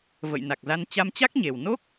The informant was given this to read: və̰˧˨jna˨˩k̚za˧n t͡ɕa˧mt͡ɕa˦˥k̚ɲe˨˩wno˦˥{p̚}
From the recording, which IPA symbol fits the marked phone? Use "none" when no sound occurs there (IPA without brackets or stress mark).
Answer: k̚